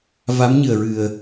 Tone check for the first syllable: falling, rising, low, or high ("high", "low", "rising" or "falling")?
rising